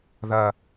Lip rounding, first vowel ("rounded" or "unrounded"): unrounded